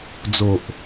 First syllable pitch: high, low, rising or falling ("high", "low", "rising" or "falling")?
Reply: low